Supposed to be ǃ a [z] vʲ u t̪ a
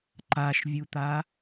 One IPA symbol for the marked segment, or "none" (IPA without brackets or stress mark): ʃ